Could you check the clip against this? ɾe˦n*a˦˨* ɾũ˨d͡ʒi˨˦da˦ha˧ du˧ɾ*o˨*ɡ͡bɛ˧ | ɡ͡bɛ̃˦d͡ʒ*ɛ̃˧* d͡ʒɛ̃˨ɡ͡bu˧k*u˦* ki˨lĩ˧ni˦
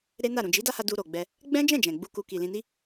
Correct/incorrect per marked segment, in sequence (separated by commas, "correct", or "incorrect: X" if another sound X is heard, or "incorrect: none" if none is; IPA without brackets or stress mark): correct, correct, incorrect: ɛ̃˦˨, incorrect: u˧